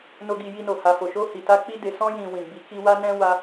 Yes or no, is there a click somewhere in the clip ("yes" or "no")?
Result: no